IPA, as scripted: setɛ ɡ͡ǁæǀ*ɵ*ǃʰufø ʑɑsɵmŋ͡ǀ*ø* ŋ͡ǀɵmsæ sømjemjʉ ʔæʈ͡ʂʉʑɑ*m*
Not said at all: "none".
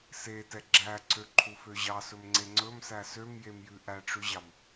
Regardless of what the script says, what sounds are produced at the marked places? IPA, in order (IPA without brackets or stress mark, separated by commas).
ø, e, m